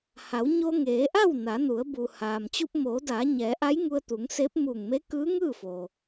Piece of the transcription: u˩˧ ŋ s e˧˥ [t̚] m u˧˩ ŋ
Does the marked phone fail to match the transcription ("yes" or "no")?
yes